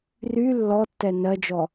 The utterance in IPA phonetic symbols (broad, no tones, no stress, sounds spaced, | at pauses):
r y lː ɔ tː ɛ n ɜ d͡ʒ ɔ